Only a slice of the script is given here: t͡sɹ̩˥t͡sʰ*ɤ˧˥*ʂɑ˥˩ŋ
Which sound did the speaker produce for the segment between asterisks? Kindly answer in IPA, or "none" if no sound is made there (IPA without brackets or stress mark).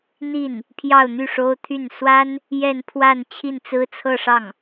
ɤ˥˧